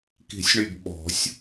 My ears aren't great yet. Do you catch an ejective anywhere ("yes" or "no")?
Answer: no